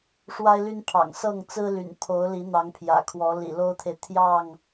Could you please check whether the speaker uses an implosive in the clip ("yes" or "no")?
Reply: no